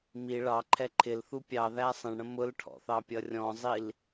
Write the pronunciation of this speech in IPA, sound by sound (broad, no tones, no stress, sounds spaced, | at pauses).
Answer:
m i ɭ ɑ ǃʰ ɛ ǃʰ ɪ l θ u pʲ ɑ ð æ sˤ ə̃ ɳ ɽ ə̃ m ʊ l ʈʰ ɔ̰ θ ɑ pʲ ʌ rʲ ɔ̃ zˤ i l